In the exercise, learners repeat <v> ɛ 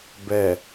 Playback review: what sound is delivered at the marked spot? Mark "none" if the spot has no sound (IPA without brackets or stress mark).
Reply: b